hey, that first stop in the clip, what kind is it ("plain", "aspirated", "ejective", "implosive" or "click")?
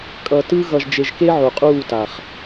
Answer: ejective